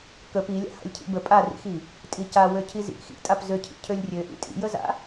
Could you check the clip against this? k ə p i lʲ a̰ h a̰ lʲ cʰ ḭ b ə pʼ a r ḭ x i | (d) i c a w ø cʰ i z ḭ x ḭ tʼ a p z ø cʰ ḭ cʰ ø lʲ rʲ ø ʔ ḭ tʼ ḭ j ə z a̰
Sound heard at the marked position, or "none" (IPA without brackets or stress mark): tʼ